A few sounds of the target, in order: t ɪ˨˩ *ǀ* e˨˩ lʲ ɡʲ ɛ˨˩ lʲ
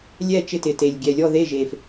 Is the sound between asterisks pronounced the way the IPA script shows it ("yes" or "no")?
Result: no